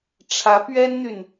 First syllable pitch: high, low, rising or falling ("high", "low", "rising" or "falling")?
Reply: rising